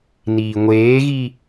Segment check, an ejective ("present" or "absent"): absent